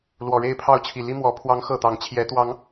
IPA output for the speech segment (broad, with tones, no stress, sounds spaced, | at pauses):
l w ɔ˨˩ ɻ e˥˨ ɪ̯ pʰ ɑ˥˨ ʊ̯ t͡ɕʰ i˨˩ l i˦ m w ɔ˨˦ pʰ w ɑ˦ ŋ x ɤ˥˨ t̪ ɑ˨˦ ŋ t͡ɕʰ j ɛ˨˦ t̪ w ɑ˨˦ ŋ